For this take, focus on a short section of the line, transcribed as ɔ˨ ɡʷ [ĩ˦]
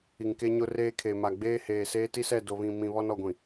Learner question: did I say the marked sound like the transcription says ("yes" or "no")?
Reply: no